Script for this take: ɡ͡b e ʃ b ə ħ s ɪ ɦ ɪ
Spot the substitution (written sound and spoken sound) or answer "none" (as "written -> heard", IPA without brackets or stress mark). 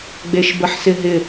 none